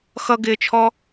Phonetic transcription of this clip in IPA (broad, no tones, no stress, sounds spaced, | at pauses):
x ʌ ɡ ɪː t͡ʃʰ ɔ